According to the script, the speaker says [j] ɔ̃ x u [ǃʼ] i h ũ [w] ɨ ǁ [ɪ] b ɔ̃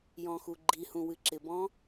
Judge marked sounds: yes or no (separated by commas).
yes, no, yes, yes